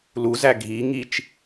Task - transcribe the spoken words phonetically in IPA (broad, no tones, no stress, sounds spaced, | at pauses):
l u z æ ɡʱ i ŋ i t͡ʃ